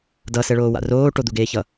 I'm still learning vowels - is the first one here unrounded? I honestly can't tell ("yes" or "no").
yes